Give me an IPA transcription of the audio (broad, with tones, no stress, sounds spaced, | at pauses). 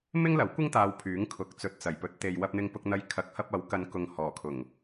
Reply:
m ɪ˥ ŋ l ɐ˨˥ w kʷ ɪ˥ ŋ t̪ aː˧ w pʰ yː˨˥ ŋ kʰ ʊ˨˥ k̚ t͡s ɵ˨ t̚ t͡s ɐ˨˩ j p ɵ˨˥ t̚ t̪ e˨ j w ɐ˧ p̚ n̪ ɪ˧ ŋ p ʊ˧ k̚ n̪ ɐ˧ j kʰ ɐ˨˥ k̚ h ɐ˧ p̚ ɐ˨˥ w k ɐ˨˧ n k ʊ˨ ŋ h ɔː˨˩ kʰ ʊ˨˩ ŋ